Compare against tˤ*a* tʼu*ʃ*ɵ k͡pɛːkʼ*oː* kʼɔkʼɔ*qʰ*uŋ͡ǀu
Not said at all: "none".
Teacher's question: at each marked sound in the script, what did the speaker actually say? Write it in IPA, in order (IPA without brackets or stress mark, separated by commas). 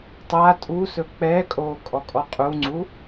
a, s, oː, qʼ